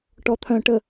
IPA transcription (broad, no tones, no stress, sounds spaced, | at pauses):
ʈ ɔ t̪ʰ œ̃ ʈ ə